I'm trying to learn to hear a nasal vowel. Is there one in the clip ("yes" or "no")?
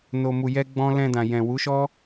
yes